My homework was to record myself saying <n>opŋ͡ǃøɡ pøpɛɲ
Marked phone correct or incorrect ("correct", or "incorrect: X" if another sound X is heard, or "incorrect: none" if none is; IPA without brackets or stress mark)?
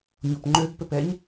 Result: incorrect: ɲ